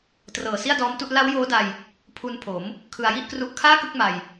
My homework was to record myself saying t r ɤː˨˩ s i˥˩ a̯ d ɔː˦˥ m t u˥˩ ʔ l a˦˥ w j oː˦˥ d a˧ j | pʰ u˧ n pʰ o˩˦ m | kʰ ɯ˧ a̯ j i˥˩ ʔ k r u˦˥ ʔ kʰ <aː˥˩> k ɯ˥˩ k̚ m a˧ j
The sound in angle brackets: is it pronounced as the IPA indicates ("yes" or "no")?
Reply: yes